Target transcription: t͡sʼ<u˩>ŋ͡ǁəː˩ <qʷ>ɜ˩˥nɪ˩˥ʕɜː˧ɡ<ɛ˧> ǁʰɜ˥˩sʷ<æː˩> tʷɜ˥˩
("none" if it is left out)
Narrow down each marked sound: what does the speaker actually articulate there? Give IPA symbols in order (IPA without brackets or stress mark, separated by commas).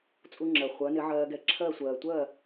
u˧, χʷ, ɛ˧, ɜː˩